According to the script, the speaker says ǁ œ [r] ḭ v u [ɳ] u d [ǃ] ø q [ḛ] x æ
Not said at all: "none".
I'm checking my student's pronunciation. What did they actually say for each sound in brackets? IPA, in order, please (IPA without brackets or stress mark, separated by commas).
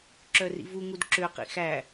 r, ŋ, ǁ, ḭ